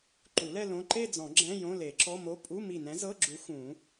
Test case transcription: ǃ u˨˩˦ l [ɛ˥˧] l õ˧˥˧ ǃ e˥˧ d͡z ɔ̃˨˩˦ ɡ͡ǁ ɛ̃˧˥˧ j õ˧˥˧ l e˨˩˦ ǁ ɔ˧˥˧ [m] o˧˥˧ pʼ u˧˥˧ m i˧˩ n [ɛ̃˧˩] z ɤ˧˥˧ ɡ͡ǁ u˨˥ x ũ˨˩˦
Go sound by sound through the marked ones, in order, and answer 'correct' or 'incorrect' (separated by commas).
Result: correct, correct, incorrect